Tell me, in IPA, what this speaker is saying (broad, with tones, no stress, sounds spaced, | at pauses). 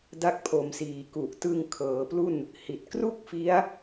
d a˦˥ k̚ pʰ o˩˦ m s iː˨˩ k u˨˩ ʔ t ɯ˧ ŋ kʰ ɤː˩˦ p l u˥˩ n | h i˨˩ t̚ k r u˥˩ k̚ f i˦˥ a̯